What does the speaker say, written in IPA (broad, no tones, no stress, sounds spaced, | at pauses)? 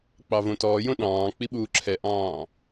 k͡p ɑ v õ t ɔː j õ ɗ ɑ̃ː k͡p i ɓ uː ǁʰ ɛ ʔ ɑ̃ː